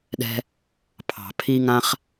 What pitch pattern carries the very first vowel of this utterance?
high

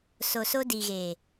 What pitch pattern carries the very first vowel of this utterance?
low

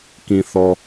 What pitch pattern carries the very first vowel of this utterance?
low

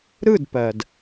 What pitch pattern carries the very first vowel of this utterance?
falling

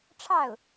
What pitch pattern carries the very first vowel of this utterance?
falling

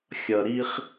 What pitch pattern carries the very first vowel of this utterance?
low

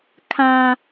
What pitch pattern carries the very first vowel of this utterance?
high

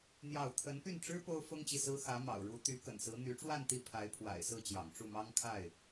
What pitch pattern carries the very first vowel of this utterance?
falling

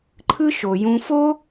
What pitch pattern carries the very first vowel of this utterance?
high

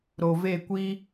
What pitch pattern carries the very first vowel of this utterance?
low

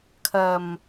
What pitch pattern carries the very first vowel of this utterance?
low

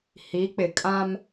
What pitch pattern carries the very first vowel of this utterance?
rising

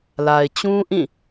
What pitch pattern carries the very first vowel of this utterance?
low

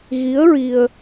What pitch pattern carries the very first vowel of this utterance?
rising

